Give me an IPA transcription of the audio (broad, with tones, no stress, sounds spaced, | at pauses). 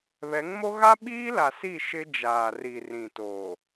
β ɛ˨˦ ŋ m o˦ ɣ a˦ ɓ iː˦ l a˨ s i˦˨ ʃ ɪ˦ d͡ʒ aː˨ r i˨ r ĩ˨ t oː˨